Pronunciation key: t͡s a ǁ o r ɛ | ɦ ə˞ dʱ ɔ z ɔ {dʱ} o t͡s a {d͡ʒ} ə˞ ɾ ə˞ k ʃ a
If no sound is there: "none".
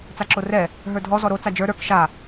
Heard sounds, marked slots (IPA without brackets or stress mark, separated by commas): ɾ, d͡ʒ